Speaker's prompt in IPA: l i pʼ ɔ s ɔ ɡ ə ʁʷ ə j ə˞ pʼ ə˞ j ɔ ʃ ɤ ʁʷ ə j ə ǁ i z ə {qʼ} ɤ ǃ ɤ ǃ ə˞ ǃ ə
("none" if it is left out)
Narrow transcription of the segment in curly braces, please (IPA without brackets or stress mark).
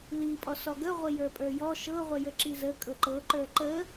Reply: kʼ